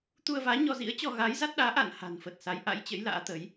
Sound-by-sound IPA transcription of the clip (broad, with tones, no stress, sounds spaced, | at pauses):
t̪ u˧ ə̯ v aː˨˦ ɲ ɔ˧ z ḭ˧˥ ə̯ t͡ɕ ɔ˧ ɣ aː˨˦ j z a˦˥ t̚ ɗ aː˨˦ ʔ a̰˧˨ n h a̤˨˩ n f ə˨˩ t̚ s a˨˦ j ʔ a̰˧˥ j t͡ɕ ə̰˧˥ j l a̰ː˧˥ t̪ ə˨˦ j